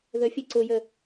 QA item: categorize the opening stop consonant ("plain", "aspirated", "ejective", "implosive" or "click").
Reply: click